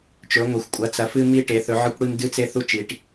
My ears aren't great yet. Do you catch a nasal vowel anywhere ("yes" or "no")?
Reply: no